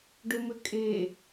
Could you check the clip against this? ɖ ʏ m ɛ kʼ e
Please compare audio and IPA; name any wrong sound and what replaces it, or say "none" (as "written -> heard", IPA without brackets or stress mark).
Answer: ɛ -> ʏ